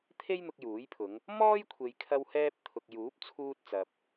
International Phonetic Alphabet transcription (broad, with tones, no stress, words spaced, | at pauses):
t̪ʰe˥jn̪ʊ˧k̚juː˨˥jpʰʊ˨˧ŋ | mɔː˥jkʷʰe˨j kʰɐ˧w hɛː˥p̚ t̪ʰʊ˨k̚juː˨˥p̚ t͡sʰuː˧t̚t͡sɐ˨p̚